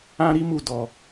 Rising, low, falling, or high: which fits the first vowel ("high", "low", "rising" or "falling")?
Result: high